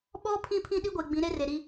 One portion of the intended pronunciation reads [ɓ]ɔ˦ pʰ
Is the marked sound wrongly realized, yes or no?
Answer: no